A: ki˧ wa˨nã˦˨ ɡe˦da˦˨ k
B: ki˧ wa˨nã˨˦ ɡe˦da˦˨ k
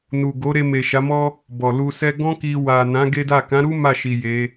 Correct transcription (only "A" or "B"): B